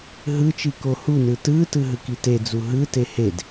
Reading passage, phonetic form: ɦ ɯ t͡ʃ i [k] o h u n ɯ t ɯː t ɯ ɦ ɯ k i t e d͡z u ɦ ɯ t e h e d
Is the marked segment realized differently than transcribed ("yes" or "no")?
no